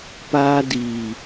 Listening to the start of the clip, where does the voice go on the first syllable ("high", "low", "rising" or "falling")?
high